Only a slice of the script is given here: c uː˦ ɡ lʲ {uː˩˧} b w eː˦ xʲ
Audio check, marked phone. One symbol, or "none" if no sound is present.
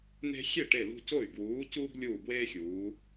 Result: uː˧˩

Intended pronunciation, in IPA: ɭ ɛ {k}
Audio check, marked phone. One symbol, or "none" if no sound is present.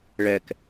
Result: k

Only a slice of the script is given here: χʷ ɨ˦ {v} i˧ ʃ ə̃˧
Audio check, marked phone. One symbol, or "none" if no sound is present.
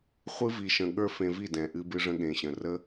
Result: v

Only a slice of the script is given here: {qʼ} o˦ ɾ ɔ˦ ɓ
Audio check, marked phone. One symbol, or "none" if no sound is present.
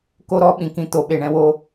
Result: k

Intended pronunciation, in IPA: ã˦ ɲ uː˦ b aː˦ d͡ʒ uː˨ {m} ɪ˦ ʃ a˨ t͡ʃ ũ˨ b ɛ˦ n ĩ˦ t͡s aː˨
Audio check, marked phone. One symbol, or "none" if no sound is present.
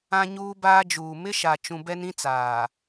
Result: m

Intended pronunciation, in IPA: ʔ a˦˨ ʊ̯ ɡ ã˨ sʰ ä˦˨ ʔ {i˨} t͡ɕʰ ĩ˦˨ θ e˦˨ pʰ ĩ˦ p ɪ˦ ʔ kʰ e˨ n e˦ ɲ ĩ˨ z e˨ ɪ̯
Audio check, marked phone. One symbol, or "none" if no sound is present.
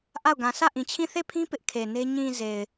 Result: ĩ˨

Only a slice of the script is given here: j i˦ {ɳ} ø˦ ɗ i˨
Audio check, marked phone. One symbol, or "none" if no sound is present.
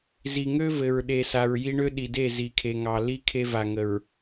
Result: ɳ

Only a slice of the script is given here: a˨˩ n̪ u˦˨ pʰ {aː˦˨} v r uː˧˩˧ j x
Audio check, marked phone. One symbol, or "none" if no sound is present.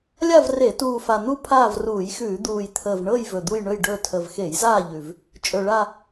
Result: aː˦˨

